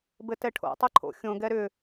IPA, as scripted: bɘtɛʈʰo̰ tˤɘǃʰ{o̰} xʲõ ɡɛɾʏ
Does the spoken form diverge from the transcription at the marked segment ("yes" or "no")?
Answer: no